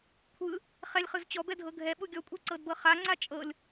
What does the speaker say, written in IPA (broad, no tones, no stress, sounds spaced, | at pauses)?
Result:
kʷʰ ɯ | χ ɛ lʲ χ ɯ z t͡ɕ ɔ b ɛ dʱ ɤ ɡʱ ɛ ɓ u ɡʲ ɔ kʷʼ ɛ ǀ ɤ d b ɤ χ a ŋ͡ǀ a t͡ʃʼ ɤ lʲ